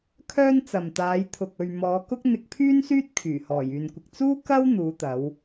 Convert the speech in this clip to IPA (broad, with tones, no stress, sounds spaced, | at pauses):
kʰ œː˥ n t͡s ɐ˨ m t̪ aː˨˧ j t̪ʰ ʊ˨ k̚ ɵ˨ ɥ m ɔː˨˧ k ʊ˥ k̚ n̪ ɪ˧ k̚ pʰ yː˥ n s yː˥ t̚ kʰ yː˨˩ h ɔː˨˩ j yː˨ n kʷ ɪ˨ k̚ t͡s uː˥ k ɐ˥ w n̪ uː˨˧ t̪ ɐ˨˧ w